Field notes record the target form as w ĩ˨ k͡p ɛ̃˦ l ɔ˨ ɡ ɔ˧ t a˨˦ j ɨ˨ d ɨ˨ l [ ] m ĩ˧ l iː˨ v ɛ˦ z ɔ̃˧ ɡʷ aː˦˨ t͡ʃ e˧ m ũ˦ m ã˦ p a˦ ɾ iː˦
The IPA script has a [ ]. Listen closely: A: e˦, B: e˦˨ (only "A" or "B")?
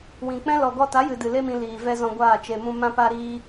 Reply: A